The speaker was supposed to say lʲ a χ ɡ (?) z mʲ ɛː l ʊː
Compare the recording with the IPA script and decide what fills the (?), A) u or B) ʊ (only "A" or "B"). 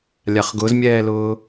B